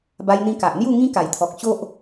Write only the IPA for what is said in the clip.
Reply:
ba˧jn̪ĩ˧ ka˨ʔn̪ju˥˧ ŋĩ˦ka˨˩jt̪ʰɔ˨k̚ ɕo˦ʔ

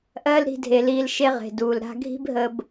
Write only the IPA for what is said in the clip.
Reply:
ʔɜː˦lɾi̤˧dʱe˨liː˧l ʃe˦ʁe̤˨duː˨l ɾa̤˧ɡʱi̤˦bɦə˧b

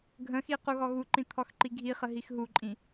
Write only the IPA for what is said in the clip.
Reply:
ɡʱə̃xi quɣɔɣuǃĩ t̪ʰɔxǃiɡʱiχə ɦixɦuǃʼĩ

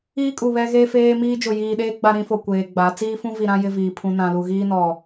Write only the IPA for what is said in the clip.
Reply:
iː˦ kʼu˨βɛ˦ɣeː˦ feː˦miː˦ d͡ʒʊ˨jiː˨ɗeː˦ ɡ͡ba˦ɾĩ˦fo˨ kʷeː˨ɡ͡ba˨˦ t͡siː˦fũ˦vi˨ɾã˦ jɪ˦viː˨ pʰũ˦ nã˦lu˦ ɣiː˦nɔ˨

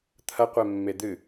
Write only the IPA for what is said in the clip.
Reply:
t̪ʰɐqʷe mːed̪ɨ

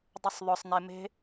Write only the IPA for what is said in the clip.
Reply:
dˤəsˤðˤʊsˤne me̤

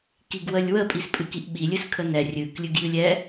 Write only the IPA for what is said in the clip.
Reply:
kiɡwəlʲwə pʼispʼɨkiʔɓi lʲɨskʰənɛ rʲɨk lʲɨɡjɨlʲɛ

